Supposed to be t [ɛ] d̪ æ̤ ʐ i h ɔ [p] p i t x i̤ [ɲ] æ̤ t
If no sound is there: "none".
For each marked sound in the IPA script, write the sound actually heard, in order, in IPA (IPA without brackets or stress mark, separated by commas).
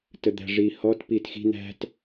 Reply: ə, t, n̪